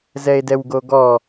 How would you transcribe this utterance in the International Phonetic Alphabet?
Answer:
z ɛ e̯ d ɛ w ɡ o ɡ ɔ

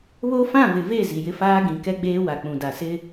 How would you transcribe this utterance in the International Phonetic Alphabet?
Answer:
β o˦ f ã˦˨ v ɪ˨ v e˦˨ z i˨ j ɪ˦ f aː˦ ɡ ĩ˨ k ɛ˦ ɡ͡b eː˦ w a˨ k͡p ũ˨ d a˨ s ɪ˦

